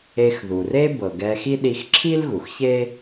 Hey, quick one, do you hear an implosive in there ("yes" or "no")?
yes